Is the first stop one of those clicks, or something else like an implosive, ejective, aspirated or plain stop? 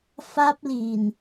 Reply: plain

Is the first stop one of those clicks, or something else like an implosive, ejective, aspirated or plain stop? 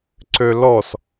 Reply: click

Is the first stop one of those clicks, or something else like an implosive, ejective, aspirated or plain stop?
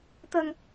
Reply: plain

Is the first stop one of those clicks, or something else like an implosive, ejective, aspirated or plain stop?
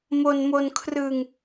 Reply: aspirated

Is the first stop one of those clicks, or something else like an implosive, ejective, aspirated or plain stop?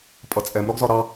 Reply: ejective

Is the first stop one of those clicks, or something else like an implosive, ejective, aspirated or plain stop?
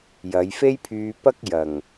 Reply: aspirated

